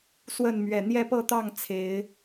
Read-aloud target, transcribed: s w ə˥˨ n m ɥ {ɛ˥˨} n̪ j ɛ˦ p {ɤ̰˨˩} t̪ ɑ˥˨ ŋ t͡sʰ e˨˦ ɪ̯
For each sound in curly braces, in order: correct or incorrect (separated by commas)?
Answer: incorrect, incorrect